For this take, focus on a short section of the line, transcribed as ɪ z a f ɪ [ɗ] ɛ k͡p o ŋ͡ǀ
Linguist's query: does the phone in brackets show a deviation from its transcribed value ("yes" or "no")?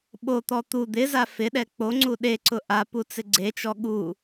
no